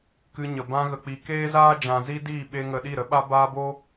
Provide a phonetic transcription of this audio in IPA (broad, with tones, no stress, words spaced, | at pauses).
kɨ˧ɲə˨ bã˧ɣə˨k͡pi˨ keː˦zaː˦d͡ʒã˨ zi˦diː˦˨ɓe˧ŋə˨ ɗi˦˨ɾə˦ɓa˦ baː˦boː˦